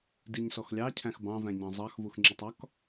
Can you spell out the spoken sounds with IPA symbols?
d i ɲ s ɔ x lʲ ɑ cʰ æ̃ x b ɑ̃ v æ̃ ɲ ɑ̃ zˤ ɑ x v u x ŋ͡ǁ i tˤ ɒ k

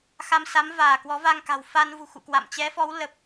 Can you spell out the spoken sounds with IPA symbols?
x a˧ m s a˨˦ m v aː˧˩ k w ɔ˨˦ v a˧ ŋ k a̤˨˩ w f a˧ n v ṳ˨˩ x ṵ˧˨ k w a̰˧˨ m t͡ɕ ɛ˨˦ f ɔ˨˦ w l ə˨˩ p̚

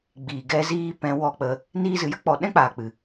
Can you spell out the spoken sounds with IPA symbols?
ɡ͡b iː˨ ɡ ɛ˧ z iː˧ p ɛ̃˨˦ w ɔ˧ k͡p ə˧ | n iː˧ z ɨ˨ j ə˦ k͡p ɔ˨ ɗ ɛ̃˦ k͡p aː˨ k͡p ɨ˨

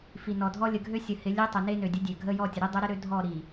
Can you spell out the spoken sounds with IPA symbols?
f i˨ n ɔ˨ dʱ ɔ˦ lʲ ə˨ ɡʱ ø˦ sʲ ə˨ h ɪ˨˦ lʲ e˦ tˤ ɪ˨ n e˦ n ø˨ dʲ ə˦ dʲ ø˨ ɡʱ ə˦ j ɔ˦˨ tʲ ə˨ ɾ i˦ dˤ ø˦ ɾ ɪ˦ ɾ ø˦ dʱ ɔ˦˨ ɾ i˨

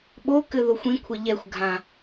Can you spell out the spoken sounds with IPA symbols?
ɓ o k ɘ ð o xʷ ĩ kʷʰ ɘ ʎ ɛ xʷ ɡʱ ã

